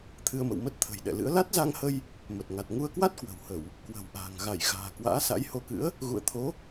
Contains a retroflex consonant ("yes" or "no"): no